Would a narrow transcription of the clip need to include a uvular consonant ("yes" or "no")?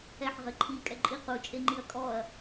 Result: yes